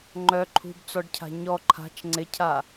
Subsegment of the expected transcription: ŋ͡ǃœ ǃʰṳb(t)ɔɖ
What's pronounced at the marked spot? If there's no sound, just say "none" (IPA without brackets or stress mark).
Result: t͡s